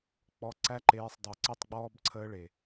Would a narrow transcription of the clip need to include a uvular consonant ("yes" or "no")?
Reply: no